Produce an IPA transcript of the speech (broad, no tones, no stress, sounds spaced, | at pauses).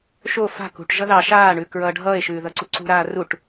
ʃ o f a̤ k ṳ ʈ ʒ ʌ ð ɑ ʃ aː ɳ ʉː k ɹ ʌː ɖʱ ʌː e̯ ʃ ʉː ð ʌ ǀ u ǀ ṳ ɾ aː r u ʈ